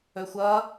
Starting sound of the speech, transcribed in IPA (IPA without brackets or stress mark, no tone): ɵ